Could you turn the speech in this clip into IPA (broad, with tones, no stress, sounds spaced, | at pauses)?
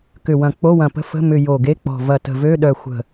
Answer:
k ʏ˧˩ w ɐ̃˧˩ k͡p o˧˥˧ w ɐ̃˧˩ p ə̤˧˥˧ f ə̤˧˥˧ m ʏ˧˩ j o˧˩ ɡ e˧˥˧ k͡p ɔ̤˧˩ v ɐ˧˩ t ə̤˧˩ v ø˧˥˧ ɗ œ˧˩ xʷ ə̤˧˩